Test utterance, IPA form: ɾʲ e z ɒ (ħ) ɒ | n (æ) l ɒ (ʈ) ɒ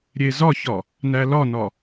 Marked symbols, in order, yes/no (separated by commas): no, yes, no